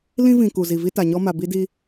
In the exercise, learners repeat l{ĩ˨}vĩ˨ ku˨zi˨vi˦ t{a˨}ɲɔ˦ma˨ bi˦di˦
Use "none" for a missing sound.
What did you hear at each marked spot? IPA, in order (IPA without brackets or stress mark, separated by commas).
ĩ˦, a˨